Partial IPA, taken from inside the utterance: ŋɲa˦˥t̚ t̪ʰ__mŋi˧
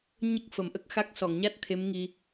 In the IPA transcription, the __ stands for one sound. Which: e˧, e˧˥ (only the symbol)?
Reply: e˧˥